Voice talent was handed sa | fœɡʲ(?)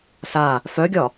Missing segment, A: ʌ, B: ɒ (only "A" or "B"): B